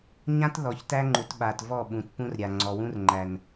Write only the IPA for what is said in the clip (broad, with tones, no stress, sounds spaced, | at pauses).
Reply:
ɲ ã˦ t ð ɔ˨ ç t æ˦ ŋ͡ǃ u˨ t ɓ a˨ t v ɔ˦˨ ɓ ũ˨ t p ũ˦ r ɾʲ a˨ ŋ͡ǀ ɔ˨ w ũ˦ r ŋ͡ǃ æ˨ n